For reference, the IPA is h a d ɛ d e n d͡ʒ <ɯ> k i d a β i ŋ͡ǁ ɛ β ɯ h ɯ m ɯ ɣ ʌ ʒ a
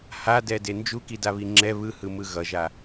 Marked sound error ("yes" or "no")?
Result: yes